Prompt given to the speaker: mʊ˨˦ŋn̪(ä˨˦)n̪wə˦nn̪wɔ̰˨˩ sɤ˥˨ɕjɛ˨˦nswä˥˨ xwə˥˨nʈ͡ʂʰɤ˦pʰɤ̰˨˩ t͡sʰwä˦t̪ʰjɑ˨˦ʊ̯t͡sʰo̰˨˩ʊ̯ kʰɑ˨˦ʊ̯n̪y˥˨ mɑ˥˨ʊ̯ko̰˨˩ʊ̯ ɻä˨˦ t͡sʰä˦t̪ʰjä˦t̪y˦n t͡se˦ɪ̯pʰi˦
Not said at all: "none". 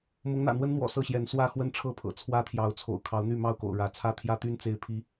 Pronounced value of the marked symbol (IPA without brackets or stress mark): ä̰˨˩